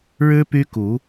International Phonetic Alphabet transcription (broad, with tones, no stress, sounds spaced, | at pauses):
ɻ ɻ̩˦ p y˦ k u˨˦